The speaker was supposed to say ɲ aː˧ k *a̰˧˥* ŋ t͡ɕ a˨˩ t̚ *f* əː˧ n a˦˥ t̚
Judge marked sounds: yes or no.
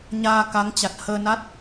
no, no

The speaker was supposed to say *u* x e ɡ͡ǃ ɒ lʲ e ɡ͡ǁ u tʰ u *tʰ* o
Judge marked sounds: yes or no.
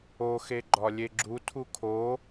no, no

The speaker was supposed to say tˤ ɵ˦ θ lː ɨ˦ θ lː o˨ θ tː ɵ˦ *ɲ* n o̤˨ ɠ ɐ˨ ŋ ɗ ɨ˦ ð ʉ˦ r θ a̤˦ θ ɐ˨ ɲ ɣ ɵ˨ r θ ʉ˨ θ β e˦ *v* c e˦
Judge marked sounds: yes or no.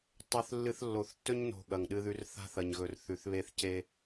yes, no

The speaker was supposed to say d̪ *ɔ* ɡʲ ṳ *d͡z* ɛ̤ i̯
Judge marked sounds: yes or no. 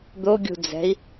no, yes

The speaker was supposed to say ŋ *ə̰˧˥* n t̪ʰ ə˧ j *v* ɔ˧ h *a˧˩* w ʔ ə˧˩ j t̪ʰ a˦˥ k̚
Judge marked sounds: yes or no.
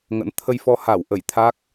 yes, no, yes

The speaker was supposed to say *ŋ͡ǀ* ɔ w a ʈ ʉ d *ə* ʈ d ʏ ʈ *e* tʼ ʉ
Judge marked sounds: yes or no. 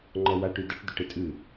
no, yes, yes

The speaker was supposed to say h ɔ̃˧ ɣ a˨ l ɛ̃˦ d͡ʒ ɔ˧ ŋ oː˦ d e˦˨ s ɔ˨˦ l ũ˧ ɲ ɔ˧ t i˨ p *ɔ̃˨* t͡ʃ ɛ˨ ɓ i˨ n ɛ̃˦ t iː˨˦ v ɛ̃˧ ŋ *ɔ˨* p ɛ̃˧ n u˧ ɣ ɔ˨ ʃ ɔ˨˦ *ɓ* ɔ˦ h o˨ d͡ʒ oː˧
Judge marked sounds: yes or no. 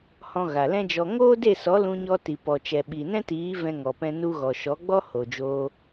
no, yes, no

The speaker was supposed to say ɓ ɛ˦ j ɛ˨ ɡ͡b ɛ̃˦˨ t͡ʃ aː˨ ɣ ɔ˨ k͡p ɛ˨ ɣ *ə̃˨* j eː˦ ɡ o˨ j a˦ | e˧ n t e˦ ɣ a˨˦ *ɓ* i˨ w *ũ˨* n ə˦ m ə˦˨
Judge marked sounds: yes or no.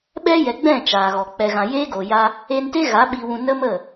no, yes, yes

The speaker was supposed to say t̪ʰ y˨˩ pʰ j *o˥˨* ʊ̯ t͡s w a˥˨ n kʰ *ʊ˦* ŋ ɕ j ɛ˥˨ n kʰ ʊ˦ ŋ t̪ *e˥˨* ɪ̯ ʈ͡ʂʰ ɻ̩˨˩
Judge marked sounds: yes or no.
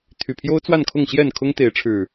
no, no, no

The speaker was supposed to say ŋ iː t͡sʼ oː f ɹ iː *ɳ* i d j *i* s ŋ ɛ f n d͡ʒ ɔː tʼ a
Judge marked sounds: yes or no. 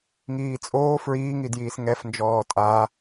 no, no

